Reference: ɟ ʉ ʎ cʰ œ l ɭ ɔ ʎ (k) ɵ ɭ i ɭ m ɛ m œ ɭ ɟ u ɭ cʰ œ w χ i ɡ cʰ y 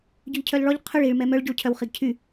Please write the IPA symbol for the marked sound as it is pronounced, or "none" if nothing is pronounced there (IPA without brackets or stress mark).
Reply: qʰ